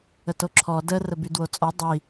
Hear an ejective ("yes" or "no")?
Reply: yes